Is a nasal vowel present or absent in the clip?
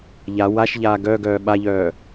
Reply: absent